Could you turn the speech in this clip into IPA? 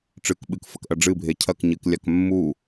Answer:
ʈ͡ʂɨkɓɨk fɐkʔɐɖ͡ʐɨ bʱecʰɐkɲɨklʲak mːu

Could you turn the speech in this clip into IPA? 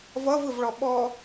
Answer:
vʌvɯvɭɔ ɓɔ

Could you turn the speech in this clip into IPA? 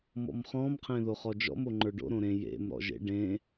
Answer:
mɔ̰mχɔ̃mqʰẽ ðoχɔd͡ʒɔ̰m oŋ͡ǃə˞ɖo̰ ɾõɾẽ jḛm ɾɔ̰ʒḛ ɖẽ

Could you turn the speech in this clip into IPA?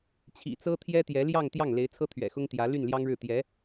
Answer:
t͡ɕʰḭ˨˩t͡sɤ˥ t̪ʰjɛ˥t̪jɛ˧˥ljɑ˥˧ŋt̪jɑ˥˩ŋ le˧˥ɪ̯t͡sʰɤ˥t̪ʰɥɛ̰˨˩xʊ˥ŋ t̪jä˧˥ ly˥˩nljɑ˥ŋɻɻ̩˥˩ t̪jɛ˧˥

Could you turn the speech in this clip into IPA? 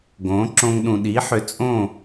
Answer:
ɡõː˩˥ǁõ˧ŋ ɗũ˩ɗi˩˥ħʏ˩˥ t͡sʼõ˥˩

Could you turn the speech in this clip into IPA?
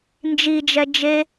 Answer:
nd͡ʒid͡ʒɛ d͡ʒe

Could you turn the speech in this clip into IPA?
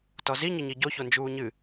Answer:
tɔzi ɲəɲiɟo çond͡ʒuːɲɨ

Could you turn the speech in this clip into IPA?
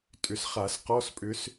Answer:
tʼʏ˨sχa˨˩˦s qɔ˧˥˧spʼʏ˧˥s

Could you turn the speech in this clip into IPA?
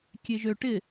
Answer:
kʲeʒø ʈɪ

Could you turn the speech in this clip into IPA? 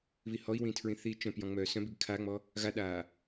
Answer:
βihɔi̯wĩ tʰɹĩθiːt͡ʃœ̃pjɔ̃ ŋ͡mœːsœ̃biɡ kʰaŋ͡mɔ | ɣaɗaː

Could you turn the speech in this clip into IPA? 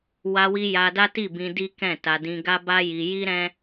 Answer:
wa˧wi˧ ja˧ da˦ti˦˨bĩ˧ di˦kɛ̃˦˨ta˧ dĩ˧ɡa˦ ba˦ji˧ji˦ɾɛ̃˦

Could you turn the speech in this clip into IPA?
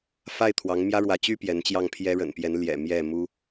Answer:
fa˥˩ɪ̯t̪ʰwɑ˧˥ŋ mjä˥ɻwä˧˥t͡ɕy˥ pjɛ˧˥nt͡ɕjɑ˥˩ŋpʰjɛ˥ ɻə̰˨˩npjɛ˧˥nljɛ̰˨˩ mjɛ˥˩mu˥

